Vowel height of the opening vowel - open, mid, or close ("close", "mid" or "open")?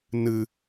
close